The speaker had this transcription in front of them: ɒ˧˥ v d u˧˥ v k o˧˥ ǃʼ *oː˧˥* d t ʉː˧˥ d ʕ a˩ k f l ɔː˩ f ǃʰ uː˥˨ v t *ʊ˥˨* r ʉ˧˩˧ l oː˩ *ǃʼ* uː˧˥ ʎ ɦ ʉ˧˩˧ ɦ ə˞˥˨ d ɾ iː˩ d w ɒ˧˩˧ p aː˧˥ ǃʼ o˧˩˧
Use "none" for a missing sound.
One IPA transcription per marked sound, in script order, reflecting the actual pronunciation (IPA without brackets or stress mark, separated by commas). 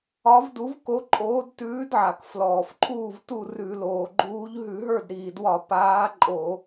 oː˧˥, u˥˨, ɡ͡ǃ